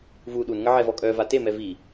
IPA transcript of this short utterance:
vu ɗunŋə ʕɛvɔkʼœ vate mɛvi

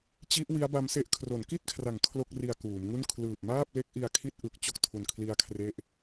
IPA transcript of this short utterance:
t͡ɕi˦˥ʔ wi˦˥a̯ba˦˥mse˦˥ʔ kʰro˩˦nki˥˩t̚kʰra˨˩ŋ kʰlo˥˩k̚ri˧a̯ kuː˩˦mŋu˥˩n kʰlɯː˨˩p̚ maː˥˩p̚le˦˥k̚ ʔi˧a̯kʰi˦˥t̚ ʔɯ˨˩k̚t͡ɕo˨˩k̚tʰu˨˩n kʰli˦˥a̯kʰre˦˥ʔ

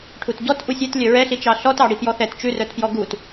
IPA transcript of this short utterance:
ʈʰutɟɔt ʔusʲɛt lʲœɹɛɬi t͡ʃɑɬɔtɑ ɽipjɔθɛt t͡ʃʉrœtpjɔ ɡut

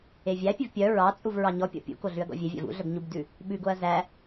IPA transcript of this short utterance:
evʲæpʲʉv pʲœ ɹɑt͡sʼuv ɹɑɲɔpʲɔ̰ pʲṵko ɮʉɐ̯ɡɔ̰vʲevʲæ̰v ṵɮœb ɲubdʉ | ɓʉɡoɐ̯ zæ

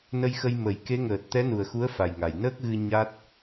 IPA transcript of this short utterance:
nə˧jxə˧j mə˨˩˦j ke˧˥ ŋəː˨˩t̚ t̪ɛ˧˥nu˨˩ə̯xu˧˥ə̯ fa˨˩jŋa˨˩j nəː˦˥k̚ɣɨ˧ ɲa˦˥t̚

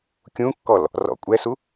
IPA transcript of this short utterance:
kʲũkːɔl | rɔ̰ kʷʼɛsu

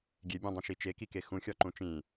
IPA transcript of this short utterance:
ɡʲebʲũdˤĩʃi t͡ʃekike xũxʲɒǃũ t͡ʃĩ

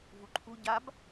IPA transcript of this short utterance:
vuǃʰu ɟab

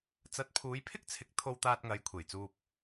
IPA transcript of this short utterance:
t͡sɐ˨˥t̚pʰuː˨˧jpʰɪ˥k̚t͡sʰɪ˨˥k̚ t̪ʰo˧wt̪aː˧t̚ŋɐ˨˧j kʷʰe˨˩jt͡suː˧p̚

